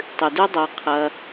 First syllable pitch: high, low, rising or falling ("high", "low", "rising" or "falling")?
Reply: low